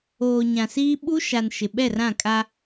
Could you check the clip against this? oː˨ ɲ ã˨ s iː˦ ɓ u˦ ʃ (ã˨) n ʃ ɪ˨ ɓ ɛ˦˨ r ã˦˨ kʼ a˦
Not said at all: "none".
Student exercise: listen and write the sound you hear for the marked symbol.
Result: a˨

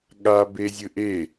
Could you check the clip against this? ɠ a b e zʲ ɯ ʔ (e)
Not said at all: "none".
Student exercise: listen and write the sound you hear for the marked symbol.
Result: e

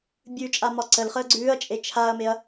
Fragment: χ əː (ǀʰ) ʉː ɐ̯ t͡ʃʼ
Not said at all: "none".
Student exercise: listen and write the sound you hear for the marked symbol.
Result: ɡ͡ǀ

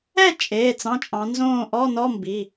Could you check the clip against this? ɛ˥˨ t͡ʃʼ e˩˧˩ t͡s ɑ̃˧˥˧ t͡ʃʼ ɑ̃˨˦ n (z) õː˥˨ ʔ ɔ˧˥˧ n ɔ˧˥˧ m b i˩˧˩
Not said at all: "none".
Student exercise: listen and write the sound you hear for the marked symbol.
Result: z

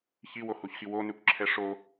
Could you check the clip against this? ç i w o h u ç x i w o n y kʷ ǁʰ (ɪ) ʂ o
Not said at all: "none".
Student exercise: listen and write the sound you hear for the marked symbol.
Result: ɛ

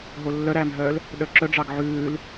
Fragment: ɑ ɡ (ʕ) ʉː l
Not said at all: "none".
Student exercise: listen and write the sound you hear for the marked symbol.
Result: ʕ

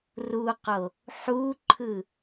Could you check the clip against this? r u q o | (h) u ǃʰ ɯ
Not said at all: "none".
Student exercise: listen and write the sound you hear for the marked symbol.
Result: ħ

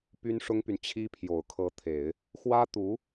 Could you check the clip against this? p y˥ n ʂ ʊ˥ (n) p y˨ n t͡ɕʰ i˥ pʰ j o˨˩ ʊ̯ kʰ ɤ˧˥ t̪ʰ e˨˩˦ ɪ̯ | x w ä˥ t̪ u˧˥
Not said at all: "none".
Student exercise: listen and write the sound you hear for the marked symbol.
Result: ŋ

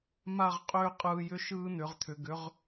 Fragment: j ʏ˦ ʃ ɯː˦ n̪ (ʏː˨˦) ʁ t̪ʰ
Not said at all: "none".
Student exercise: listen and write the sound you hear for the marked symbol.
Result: ʏ˨˦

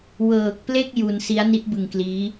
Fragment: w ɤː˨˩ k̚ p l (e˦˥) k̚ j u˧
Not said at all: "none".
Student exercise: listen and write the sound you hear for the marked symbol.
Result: e˥˩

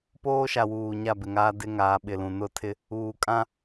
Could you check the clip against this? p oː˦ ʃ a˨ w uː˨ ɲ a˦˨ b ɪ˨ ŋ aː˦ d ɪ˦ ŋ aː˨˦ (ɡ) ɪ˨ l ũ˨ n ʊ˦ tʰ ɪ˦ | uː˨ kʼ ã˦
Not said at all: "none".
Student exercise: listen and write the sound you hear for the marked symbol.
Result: ɓ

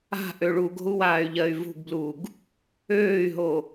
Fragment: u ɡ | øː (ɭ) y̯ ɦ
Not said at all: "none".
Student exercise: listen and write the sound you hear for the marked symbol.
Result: none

